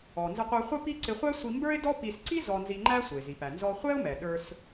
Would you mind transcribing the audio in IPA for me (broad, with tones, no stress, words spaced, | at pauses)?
ɔ˩ nzə˧qʷə˞˧ χʷə˥ pi˥ ǀɪ˧χʷæ˥ sʷi˧mbə˞˥ɪ̯dɔ˥ pi˧s ǀi˥ zɔ˧nzi˧ŋ͡ǃæ˥ sʷə˩ɪ̯zi˩pæ˩ nzɔ˧χʷɛ˥ʊ̯mɛ˩ ɗə˞˧s